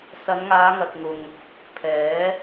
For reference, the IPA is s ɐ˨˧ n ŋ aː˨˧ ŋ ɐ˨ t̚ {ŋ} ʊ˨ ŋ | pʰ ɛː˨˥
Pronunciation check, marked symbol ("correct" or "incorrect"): correct